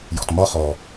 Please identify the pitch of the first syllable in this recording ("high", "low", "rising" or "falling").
low